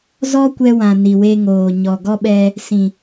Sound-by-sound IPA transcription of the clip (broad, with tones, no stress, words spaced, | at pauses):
zɔ˦kʷɛ˧wã˨ ni˨we˧ŋoː˨ ɲɔ˨ ɡɔ˦ɓɛ˧ | sĩ˨